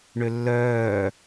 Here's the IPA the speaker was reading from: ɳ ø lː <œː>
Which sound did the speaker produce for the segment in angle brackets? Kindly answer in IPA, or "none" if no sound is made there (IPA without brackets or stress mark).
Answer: œː